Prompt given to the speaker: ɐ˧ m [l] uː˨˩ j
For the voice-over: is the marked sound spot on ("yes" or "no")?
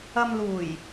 yes